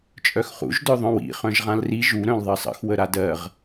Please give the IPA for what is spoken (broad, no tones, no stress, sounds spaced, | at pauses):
t͡ʃʼ œ x χ ṵ ʒ d œ ðˤ œ̃ w ḭ χ œ̃ ʒ ʁ ã l r i ʒ u ɾ œ̃ l ðˤ ɜ sˤ ə̰ x w ə ɾ a d ɜ ʁ